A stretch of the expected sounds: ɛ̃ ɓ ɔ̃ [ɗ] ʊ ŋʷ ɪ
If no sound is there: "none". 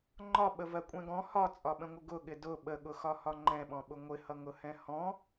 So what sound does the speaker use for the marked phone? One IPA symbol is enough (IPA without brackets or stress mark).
ɓ